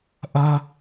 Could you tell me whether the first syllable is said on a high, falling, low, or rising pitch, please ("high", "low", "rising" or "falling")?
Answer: high